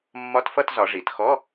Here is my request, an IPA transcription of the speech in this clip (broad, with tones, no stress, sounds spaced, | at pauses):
mː ɒ˧˥˧ t f ʌ˥˧ t z ɒ˩˧ ʐ i˩˧ t x ɔ˧˥˧